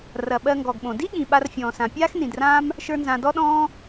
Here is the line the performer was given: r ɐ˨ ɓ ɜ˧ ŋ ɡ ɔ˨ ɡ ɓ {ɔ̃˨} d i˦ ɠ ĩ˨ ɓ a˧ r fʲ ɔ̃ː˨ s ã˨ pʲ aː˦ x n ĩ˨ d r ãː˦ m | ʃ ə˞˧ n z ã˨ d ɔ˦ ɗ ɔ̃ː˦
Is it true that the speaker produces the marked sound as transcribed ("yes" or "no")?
no